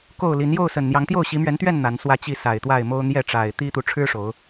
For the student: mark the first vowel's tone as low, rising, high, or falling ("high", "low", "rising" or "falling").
falling